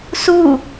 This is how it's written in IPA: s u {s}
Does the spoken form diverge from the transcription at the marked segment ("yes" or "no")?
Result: yes